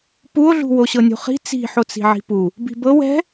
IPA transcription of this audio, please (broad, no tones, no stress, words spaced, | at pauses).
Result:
puo̯ɮṳ woɕɤnʲṳχi̤ t͡si̤ħot͡si̤ ʕi̤pu | bi̤bɤw ɛ̤